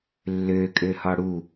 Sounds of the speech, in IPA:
lːø kʼøhɒɽu

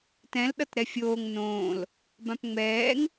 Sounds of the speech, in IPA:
tɛ̃l ɗʌtɾɛfʲoːŋ nõːl | bãpŋ͡mɛːŋ

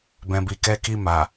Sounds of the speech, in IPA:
bɛ̃˨bi˨ kɛ˧ki˧ ma˨

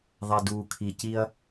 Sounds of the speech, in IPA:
ðˤɛ˨duː˨ kʰi˨ci˦ɐ̯

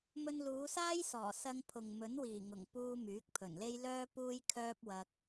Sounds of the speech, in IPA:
mɵ˧nluː˨˧saː˥jsɔː˨˩ sɐ˧ŋpʰʊ˨ŋ mɵ˨˥nwiː˨˩ŋʊ˨˩ŋpuː˧ myː˨˥k̚pʰɵ˨˩nle˥j lœː˥ puː˥jkʰœː˥p̚wɐ˧k̚

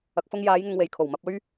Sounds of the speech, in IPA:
ɐ˨k̚fʊ˧ŋjaː˨˧jŋʊ˨ŋ we˨˩jkʰo˨˩wmɐ˨p̚ ɵ˧ɥ

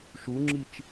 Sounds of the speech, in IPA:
ʃuŋ͡ǁit͡ʃ

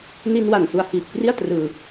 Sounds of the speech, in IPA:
ni˧nwa˨˩n su˧a̯hiː˨˩p̚kri˥˩a̯ trɯː˧

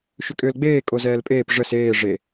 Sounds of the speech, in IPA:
ʃʏkʼʏːlɡ͡beː kʼozɛːlpʼeːp ʐəs eː ʐe

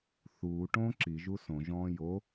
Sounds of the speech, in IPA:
θuː ʈõːǁi ʒusõ ʒɔ̃ːjo

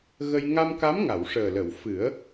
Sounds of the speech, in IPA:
ɣə˧j ŋa˧mka˧˥m ŋa˨˩˨wʂəː˨˩lə˨˩˨wfɨ˨˩˦ə̯

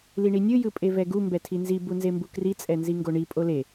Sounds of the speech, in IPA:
liɳinʲɯ jɯpʼevɛɡu mbɛtʰinzi bunzembukri t͡sʼɛnziŋɡoɳi pʼole

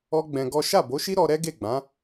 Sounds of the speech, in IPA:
ɔ˦ɡ͡bɛ̃˧ɡɔ˦ ʃa˦˨bo˨˦ʃi˦ ɾɔ˧ɾɛ˦ɡe˦˨ ɡ͡bã˨˦

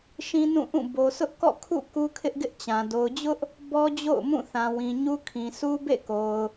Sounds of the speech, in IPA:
ʃĩ˦nũ˦˨ʔũ˦˨ bo˨sʊ˦ʔ kɔ̰˦˨kʰṵ˦˨ ku˦kʰɪ˦ʔɡɪ˦ʔt͡ɕã˨ do˨ʊ̯d͡ʑʊ˦ʔ | bɔ˦d͡ʑo̰˦˨ʊ̯mũ˦˨ θã˨wĩ˨ɲu˦ kʰĩ˨su˦ bḛ˦˨ko˨ʊ̯

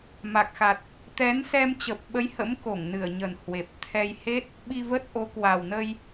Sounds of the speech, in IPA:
ma˨˩k̚xa˨˩t̚ | t̪ɛ˨˦nsɛ˧m t͡ɕə˨˩p̚ɓə˨˦jhə̰˧˥m ko˧˩ŋnɨ˧˩ə̯ɲə˨˩n hwe˨˩p̚ t̪ʰɛ˧j he˦˥t̚ | ɓi˧və˦˥t̚ʔo˨˦ kwa˨˩wnə˧j

